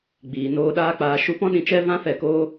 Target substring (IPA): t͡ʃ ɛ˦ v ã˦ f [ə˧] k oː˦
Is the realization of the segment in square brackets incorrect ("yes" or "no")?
yes